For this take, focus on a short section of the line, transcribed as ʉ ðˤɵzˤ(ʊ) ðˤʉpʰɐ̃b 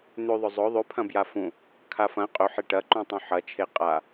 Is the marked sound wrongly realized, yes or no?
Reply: yes